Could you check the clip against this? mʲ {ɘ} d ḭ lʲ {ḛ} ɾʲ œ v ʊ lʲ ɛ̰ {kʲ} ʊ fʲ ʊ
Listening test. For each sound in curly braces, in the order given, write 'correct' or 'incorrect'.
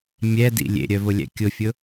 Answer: incorrect, correct, correct

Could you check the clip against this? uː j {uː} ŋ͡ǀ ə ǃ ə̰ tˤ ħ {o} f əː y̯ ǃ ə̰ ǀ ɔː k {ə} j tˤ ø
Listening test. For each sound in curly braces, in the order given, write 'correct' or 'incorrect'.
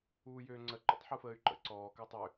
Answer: incorrect, incorrect, correct

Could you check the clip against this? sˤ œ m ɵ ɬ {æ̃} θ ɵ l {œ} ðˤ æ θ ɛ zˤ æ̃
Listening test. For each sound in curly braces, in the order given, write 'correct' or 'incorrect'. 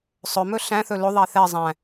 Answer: correct, incorrect

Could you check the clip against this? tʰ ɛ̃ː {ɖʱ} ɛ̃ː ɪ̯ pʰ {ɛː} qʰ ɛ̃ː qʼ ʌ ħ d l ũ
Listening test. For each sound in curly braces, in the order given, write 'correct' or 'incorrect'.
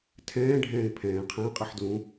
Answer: correct, incorrect

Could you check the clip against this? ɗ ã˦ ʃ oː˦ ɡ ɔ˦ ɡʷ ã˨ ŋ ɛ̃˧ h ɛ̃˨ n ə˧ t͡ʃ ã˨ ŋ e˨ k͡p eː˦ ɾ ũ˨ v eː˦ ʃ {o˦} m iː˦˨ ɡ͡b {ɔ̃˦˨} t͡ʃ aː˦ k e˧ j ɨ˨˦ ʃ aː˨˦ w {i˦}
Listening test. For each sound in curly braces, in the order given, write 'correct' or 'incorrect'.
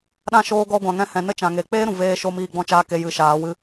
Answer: correct, incorrect, incorrect

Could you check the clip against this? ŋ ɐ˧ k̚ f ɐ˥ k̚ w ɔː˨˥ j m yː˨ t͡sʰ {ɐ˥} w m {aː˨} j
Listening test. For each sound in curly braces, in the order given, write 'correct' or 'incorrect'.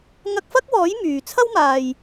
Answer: correct, correct

